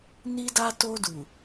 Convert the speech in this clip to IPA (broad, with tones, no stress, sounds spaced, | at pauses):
n i˦ d a˦ t o˧ d u˨